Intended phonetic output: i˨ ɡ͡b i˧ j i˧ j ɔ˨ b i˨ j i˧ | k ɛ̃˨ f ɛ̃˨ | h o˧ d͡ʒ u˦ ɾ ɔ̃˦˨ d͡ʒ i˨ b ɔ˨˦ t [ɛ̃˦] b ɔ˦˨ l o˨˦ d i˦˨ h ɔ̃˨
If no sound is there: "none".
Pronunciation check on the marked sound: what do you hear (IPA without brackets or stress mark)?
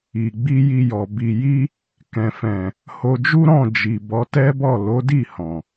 ɛ˦